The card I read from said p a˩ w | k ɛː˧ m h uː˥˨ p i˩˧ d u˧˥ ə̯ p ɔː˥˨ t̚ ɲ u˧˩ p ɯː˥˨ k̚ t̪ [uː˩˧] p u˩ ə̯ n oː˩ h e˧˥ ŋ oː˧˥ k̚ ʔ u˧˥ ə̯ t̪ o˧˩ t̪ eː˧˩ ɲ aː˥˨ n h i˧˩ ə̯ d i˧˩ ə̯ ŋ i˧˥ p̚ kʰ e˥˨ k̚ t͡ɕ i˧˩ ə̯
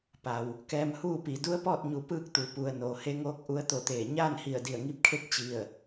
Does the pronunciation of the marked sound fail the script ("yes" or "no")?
yes